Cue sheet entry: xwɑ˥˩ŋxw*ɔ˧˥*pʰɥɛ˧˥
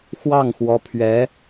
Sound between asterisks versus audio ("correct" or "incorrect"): correct